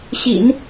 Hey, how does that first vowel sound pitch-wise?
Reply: low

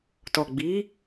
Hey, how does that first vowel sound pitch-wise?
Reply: low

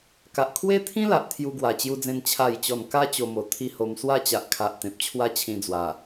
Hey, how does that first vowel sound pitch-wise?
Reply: low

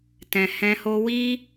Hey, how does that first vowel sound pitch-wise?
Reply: low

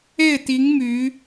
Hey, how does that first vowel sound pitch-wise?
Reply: falling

